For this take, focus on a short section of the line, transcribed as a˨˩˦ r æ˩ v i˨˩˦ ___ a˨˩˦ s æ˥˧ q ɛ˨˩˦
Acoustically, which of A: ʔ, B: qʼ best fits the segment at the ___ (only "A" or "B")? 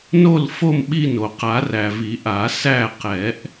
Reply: A